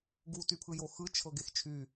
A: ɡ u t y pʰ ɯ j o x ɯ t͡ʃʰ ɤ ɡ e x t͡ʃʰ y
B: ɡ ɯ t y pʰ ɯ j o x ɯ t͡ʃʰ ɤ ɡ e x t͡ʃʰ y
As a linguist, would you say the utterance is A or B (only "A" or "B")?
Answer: A